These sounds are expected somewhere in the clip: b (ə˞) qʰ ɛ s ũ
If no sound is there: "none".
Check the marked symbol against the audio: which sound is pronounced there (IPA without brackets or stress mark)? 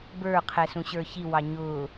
ə˞